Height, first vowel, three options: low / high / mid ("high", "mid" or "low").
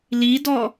high